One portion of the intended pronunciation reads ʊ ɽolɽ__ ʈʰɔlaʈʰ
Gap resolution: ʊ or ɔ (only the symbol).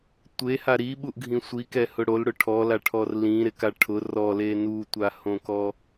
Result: ʊ